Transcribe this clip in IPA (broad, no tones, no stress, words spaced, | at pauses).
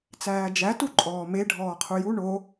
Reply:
t͡sæːd͡ʒæ tuǃʼɔːme ɖʱɔːqʰuju ɳo